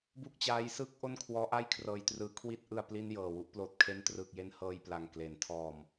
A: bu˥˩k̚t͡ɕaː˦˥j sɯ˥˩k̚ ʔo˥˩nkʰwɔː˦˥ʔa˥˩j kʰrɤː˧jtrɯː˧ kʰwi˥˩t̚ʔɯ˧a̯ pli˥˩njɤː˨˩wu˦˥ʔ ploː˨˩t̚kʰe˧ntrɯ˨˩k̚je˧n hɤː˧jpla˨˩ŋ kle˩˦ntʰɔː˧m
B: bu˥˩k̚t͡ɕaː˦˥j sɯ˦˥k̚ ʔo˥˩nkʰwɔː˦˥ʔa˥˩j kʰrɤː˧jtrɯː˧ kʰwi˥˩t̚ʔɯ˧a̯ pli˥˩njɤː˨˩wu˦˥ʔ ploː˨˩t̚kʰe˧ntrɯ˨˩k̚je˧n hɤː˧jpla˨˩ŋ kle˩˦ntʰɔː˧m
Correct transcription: A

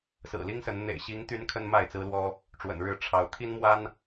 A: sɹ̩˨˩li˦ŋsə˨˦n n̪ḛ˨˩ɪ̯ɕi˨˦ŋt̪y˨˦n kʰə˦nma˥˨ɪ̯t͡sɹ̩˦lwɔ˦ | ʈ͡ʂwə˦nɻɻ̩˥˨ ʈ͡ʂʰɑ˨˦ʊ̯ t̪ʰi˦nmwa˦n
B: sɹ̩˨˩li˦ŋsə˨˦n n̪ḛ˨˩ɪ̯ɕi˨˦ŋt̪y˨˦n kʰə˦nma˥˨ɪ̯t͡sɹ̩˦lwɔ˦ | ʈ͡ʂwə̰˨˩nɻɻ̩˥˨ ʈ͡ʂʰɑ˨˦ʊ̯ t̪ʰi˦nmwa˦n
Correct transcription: B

